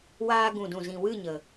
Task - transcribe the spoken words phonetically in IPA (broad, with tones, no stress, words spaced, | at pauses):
waː˧ɡũ˨dũ˨zĩ˨ wɨ˦˨ɲə˨